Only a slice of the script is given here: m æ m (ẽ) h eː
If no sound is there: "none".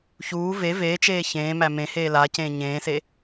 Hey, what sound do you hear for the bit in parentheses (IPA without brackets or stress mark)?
ẽ